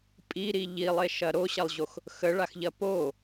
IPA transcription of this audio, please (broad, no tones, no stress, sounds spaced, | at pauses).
pʼ i ɾ i ʎ i lˠ e ʃ ɐ ɾ o ɕ ɐ lˠ ʑ o x | x ə ɭ a x ʎ ɐ p o